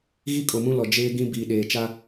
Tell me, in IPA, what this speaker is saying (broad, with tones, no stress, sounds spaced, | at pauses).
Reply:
ɣ i˦ kʼ o˨ m ũ˦ l ɔ˨ d͡ʒ eː˦ ɡ ĩ˦ b iː˨ ɗ eː˨ t͡ʃ a˦